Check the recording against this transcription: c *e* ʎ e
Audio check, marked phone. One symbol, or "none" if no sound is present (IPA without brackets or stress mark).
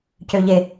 ø